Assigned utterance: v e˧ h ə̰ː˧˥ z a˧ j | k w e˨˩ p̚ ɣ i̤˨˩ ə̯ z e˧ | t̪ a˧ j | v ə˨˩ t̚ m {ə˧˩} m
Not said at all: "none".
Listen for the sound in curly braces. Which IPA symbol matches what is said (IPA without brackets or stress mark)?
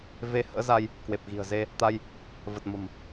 ə̤˨˩